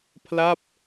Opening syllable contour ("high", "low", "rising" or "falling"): falling